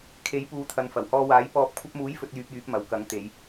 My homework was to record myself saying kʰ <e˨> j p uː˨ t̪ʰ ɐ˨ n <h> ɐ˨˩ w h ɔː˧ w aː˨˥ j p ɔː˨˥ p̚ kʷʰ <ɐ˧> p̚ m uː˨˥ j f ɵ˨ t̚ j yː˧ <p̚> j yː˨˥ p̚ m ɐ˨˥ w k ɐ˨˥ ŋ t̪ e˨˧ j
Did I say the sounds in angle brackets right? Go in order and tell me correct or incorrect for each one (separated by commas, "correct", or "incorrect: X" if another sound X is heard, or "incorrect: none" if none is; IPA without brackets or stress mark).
incorrect: e˨˥, incorrect: f, correct, correct